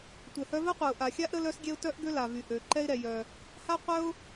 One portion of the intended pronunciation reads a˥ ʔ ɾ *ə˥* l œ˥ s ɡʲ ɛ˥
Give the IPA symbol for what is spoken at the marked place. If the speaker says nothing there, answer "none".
ə˥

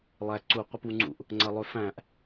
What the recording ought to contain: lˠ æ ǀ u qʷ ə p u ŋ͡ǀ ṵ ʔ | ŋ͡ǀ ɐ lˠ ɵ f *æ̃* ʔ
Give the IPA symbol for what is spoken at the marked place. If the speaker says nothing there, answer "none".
æ̃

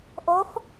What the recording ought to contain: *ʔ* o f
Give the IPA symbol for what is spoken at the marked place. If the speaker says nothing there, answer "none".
ʔ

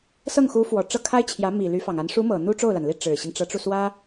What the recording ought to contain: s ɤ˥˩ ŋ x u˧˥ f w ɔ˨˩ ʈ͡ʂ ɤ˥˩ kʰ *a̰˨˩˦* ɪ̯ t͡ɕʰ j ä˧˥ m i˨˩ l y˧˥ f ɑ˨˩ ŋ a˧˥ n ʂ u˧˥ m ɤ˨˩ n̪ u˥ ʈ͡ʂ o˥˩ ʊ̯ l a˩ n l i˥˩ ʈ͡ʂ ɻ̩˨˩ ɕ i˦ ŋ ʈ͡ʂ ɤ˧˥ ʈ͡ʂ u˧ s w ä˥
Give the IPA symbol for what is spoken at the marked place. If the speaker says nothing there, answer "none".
a˥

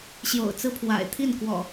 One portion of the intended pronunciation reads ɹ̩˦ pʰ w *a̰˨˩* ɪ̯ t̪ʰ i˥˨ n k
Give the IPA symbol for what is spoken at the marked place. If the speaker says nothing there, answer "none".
a̰˨˩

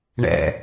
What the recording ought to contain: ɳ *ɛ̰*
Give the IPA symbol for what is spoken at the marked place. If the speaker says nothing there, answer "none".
ɛ̰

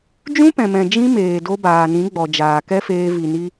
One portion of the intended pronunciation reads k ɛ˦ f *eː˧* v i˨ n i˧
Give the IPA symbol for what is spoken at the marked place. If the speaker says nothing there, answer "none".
eː˧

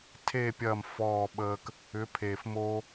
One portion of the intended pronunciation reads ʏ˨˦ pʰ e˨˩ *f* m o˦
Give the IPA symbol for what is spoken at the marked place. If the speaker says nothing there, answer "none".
f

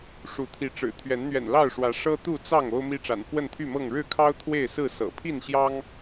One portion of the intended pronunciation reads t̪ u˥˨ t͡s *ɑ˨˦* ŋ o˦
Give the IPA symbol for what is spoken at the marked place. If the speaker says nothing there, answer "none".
ɑ˥˨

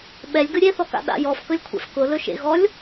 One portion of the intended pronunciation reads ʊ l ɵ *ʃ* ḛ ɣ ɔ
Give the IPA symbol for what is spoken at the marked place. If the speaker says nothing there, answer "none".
ʃ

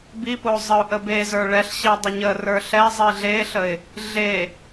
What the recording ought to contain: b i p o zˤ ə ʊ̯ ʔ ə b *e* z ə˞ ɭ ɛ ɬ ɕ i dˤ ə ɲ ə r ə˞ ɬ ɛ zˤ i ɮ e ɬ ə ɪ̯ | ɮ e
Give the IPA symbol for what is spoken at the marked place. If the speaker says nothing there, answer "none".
e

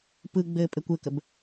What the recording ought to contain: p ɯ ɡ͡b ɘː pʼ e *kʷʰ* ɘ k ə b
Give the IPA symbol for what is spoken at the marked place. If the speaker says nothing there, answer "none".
kʷ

